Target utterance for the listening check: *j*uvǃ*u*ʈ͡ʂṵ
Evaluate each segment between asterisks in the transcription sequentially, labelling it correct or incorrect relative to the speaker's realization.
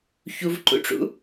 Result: incorrect: ç, incorrect: ṵ

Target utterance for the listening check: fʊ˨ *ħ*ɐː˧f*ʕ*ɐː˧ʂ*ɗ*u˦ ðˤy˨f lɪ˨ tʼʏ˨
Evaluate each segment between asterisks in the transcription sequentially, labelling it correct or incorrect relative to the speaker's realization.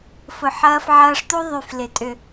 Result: correct, correct, incorrect: t̪

